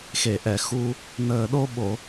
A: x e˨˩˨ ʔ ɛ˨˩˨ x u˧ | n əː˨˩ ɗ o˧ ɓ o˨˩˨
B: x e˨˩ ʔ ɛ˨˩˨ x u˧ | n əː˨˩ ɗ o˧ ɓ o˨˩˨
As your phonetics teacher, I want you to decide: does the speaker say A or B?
A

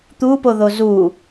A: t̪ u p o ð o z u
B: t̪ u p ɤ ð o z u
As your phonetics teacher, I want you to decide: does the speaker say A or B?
A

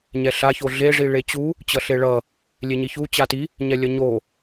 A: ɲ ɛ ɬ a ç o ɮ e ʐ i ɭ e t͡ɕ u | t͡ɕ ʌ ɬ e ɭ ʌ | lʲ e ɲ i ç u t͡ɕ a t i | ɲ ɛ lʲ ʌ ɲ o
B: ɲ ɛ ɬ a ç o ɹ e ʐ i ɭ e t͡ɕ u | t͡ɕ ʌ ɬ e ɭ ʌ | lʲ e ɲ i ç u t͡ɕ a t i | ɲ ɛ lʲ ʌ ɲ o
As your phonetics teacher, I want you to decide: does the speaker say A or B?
A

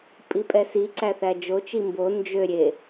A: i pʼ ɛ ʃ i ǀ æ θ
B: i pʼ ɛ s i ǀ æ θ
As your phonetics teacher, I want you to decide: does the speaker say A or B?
B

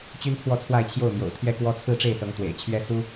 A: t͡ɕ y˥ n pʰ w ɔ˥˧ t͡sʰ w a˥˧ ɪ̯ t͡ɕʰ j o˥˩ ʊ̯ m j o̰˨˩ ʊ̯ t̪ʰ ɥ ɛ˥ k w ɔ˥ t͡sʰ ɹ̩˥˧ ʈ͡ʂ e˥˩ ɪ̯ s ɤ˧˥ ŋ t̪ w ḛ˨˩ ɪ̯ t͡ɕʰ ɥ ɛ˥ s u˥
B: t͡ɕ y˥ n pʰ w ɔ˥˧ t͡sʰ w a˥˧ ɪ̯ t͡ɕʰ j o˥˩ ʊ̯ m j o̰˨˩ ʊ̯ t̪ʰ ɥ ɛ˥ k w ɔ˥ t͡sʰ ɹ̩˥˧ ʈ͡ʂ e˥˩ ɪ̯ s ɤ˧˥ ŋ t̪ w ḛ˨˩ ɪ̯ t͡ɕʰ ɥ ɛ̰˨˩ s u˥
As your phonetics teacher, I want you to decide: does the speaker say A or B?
A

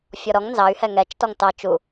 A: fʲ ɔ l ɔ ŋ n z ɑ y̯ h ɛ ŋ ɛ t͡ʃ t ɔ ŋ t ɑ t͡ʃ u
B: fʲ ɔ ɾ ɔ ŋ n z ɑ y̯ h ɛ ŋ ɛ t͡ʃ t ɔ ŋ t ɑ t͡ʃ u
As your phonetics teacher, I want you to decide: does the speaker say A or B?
B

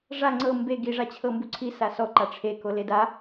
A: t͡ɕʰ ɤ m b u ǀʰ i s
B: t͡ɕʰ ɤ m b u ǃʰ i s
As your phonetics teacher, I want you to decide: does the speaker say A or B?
A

